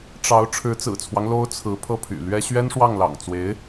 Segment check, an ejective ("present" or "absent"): absent